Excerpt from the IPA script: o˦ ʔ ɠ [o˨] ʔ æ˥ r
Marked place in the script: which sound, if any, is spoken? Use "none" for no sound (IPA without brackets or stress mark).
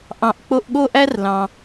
o˥